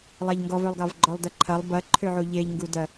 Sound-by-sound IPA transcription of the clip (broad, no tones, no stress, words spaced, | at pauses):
lˠaʎŋɡɔvølˠɡɑv ɡ͡ǃɔlˠdɐǃʰɐlˠ bɐǃʰøʕu ʎeʎ ŋɡudɐ